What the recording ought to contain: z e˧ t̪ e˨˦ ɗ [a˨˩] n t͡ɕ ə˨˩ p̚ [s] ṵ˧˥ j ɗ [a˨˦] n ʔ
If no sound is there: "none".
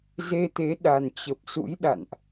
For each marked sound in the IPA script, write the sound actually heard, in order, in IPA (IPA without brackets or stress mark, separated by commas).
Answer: a˨˩, s, a̰˧˨